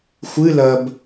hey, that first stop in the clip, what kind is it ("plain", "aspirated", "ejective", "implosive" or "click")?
plain